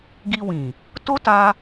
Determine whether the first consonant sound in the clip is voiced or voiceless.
voiced